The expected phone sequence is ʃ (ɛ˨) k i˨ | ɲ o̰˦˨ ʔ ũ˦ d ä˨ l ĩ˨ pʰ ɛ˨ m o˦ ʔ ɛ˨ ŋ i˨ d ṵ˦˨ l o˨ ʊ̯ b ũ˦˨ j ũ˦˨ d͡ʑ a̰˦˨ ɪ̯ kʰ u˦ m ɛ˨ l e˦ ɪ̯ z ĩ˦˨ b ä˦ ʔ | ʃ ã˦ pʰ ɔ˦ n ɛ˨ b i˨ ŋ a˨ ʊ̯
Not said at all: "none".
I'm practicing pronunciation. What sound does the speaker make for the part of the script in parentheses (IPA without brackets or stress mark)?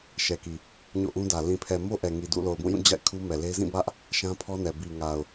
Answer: ɛ˨